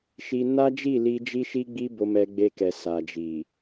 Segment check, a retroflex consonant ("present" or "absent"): absent